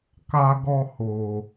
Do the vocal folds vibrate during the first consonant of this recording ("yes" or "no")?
no